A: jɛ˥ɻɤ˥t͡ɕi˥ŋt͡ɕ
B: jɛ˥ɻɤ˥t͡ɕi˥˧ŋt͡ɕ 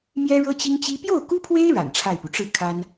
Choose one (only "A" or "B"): A